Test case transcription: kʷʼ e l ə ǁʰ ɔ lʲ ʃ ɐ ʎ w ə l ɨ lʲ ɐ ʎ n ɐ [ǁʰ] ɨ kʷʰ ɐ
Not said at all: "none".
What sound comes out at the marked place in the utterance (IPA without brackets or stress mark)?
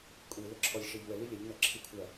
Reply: ǁʰ